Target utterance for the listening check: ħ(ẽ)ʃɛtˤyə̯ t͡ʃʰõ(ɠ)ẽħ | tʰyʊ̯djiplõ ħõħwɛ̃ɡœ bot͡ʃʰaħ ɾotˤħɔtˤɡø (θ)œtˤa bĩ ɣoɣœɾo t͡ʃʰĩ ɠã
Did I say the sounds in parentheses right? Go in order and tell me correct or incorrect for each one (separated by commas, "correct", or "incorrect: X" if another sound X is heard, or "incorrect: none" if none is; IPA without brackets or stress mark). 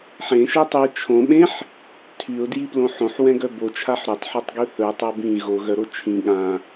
correct, incorrect: ɓ, correct